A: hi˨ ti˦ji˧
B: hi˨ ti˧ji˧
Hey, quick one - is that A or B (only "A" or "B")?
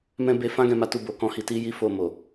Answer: B